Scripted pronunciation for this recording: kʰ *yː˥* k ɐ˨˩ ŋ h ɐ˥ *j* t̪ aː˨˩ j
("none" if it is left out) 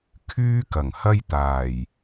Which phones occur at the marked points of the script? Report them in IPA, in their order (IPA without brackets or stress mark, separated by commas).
yː˥, j